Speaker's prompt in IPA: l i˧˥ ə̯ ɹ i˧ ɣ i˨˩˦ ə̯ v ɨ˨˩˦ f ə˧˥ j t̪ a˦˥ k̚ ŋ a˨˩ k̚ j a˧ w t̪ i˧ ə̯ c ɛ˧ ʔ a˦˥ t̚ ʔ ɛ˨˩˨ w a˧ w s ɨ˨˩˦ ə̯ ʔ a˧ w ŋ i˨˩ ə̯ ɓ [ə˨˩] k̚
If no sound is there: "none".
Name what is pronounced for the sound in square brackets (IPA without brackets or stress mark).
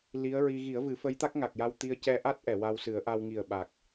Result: a˨˩